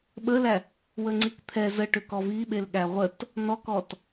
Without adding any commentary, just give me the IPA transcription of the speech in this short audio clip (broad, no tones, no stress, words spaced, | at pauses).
ɓəlæ | wəŋ͡ǀikt̪ʰɛ zə ʈʏkɔviɓel ɠæʁʷət | nɔkɔt